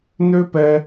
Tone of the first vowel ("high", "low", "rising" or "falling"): high